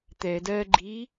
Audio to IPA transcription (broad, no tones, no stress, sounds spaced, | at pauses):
t̪ ɛ d ɜ ɡ͡ǃ i